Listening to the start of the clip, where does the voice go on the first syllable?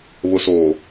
low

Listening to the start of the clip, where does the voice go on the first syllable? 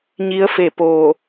rising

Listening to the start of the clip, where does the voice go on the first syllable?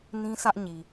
high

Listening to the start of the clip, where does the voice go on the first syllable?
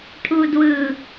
low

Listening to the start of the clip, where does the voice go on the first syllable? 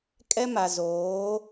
high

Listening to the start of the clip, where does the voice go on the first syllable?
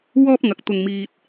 high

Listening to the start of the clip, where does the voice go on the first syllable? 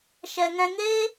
low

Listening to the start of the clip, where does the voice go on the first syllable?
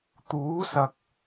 rising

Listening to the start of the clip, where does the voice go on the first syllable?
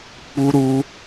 high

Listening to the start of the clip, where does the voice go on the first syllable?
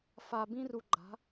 low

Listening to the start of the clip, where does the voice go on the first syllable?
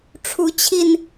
rising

